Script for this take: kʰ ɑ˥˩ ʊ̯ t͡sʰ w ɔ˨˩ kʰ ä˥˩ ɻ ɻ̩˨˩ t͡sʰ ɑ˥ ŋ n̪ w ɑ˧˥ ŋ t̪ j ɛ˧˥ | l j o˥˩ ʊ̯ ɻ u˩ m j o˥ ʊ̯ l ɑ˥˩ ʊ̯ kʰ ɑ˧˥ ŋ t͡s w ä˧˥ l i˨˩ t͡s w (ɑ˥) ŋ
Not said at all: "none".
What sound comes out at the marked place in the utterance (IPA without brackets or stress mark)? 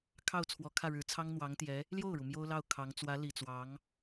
ɑ˧˥